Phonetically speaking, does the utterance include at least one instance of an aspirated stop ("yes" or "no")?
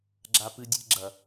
no